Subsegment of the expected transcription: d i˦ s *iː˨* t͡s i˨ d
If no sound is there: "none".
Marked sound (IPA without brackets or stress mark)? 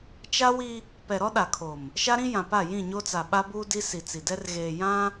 i˨